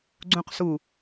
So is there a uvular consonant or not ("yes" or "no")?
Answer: yes